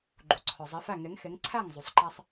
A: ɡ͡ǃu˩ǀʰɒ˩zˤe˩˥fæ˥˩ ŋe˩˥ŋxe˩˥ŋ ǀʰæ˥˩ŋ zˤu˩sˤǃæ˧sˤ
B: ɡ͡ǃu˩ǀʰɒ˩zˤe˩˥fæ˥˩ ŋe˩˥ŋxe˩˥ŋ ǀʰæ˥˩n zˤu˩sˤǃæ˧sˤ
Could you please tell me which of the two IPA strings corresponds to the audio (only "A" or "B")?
A